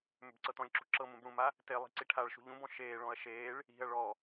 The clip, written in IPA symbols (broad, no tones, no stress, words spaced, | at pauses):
mʏbǀɤtɔ̃lʲǁṳ ǁɤm ũbɽũma | telˠi̤ ǀiʈʰaɭʃṳ ʎũbɔ̃ ʃeːɭɔ̃ɐ̯ ʃeːɭ | i̤ɐ̯ ɭɔ